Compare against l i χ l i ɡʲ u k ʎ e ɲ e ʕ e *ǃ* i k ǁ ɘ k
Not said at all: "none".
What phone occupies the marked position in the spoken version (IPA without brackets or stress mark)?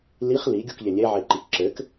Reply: ǃ